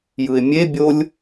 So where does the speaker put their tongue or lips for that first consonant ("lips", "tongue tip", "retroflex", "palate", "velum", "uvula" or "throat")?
palate